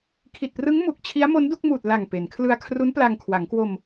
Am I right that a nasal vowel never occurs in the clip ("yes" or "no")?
yes